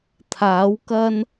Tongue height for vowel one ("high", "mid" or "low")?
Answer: low